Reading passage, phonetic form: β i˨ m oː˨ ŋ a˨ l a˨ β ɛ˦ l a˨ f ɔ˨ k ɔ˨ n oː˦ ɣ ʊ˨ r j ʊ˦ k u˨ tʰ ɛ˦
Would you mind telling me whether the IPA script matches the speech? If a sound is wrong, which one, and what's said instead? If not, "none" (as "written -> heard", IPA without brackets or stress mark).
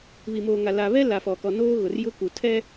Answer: none